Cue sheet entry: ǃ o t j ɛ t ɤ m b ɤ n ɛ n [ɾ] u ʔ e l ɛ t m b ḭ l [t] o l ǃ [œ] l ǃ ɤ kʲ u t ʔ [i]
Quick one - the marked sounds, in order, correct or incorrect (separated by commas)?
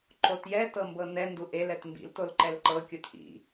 incorrect, correct, incorrect, incorrect